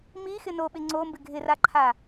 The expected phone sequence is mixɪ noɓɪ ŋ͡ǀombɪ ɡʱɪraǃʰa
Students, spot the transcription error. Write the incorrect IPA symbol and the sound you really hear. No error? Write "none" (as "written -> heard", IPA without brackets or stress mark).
none